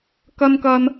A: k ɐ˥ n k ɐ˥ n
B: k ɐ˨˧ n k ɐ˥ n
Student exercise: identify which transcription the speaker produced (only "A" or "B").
A